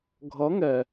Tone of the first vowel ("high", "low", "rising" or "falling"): rising